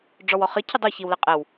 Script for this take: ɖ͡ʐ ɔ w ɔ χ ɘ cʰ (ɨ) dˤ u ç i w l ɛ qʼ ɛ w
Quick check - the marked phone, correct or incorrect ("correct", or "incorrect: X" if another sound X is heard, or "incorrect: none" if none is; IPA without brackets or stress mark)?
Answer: correct